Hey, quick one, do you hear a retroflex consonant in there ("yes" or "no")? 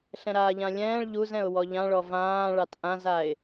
yes